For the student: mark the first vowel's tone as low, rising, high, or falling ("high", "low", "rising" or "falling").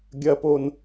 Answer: low